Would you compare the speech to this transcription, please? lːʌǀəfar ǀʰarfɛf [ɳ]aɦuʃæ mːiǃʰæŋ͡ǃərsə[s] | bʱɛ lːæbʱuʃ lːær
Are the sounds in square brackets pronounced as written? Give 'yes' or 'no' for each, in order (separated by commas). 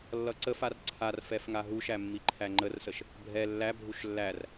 no, no